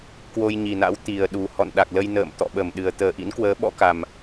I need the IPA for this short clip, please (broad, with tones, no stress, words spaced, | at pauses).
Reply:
kwo˧jɲi˨˩na̰˧˥w t̪i˨˩ə̯ɗu˨˩ hɔ̰˧˨nɗa˨˩k̚lə˧j nə̰ː˧˨m t̪ɔ̰˧˨ɓə˧˩mɗɨ˨˩ə̯ t̪əː˨˩ʔḭ˧˥nkwəː˨˦ ɓɔ̰˧˥ka˨˩m